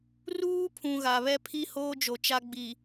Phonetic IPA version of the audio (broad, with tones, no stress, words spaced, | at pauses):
ruː˦pʰũ˨ ɣa˨βɛ˦pʰi˦hoː˦ d͡ʒo˨t͡ʃa˦ɡ͡bi˨